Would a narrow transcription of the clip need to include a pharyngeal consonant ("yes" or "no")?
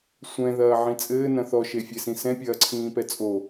yes